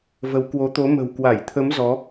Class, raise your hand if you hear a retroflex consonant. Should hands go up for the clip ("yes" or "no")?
no